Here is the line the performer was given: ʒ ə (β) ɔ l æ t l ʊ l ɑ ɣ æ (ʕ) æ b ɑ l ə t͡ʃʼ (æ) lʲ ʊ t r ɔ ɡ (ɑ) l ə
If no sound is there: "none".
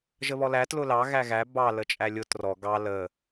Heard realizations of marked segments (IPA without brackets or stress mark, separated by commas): β, ɣ, æ, ɑ